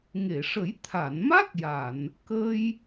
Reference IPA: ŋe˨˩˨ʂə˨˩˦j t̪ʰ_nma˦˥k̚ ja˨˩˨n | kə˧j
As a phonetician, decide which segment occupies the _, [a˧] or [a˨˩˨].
a˨˩˨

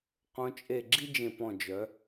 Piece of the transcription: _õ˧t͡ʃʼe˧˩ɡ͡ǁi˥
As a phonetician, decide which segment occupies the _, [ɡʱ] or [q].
q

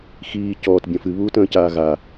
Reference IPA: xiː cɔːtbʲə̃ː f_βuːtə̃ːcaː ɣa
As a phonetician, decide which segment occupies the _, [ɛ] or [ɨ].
ɨ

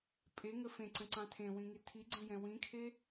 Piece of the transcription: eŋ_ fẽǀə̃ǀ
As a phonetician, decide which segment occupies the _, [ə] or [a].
ə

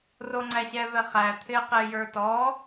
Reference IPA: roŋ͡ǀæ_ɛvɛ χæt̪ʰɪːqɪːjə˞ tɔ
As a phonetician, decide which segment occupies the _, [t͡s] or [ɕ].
ɕ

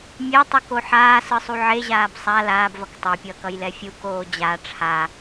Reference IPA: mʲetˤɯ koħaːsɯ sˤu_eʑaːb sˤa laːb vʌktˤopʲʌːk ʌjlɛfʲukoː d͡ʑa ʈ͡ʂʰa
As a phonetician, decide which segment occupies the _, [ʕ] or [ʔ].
ʕ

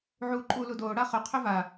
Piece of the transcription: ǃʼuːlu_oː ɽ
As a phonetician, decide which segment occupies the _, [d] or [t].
d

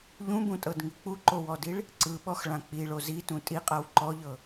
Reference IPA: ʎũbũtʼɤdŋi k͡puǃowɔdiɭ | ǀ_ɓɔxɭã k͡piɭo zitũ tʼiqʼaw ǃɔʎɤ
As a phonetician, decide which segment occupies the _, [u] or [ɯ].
ɯ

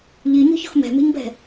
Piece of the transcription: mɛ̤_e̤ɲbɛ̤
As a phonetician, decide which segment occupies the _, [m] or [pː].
m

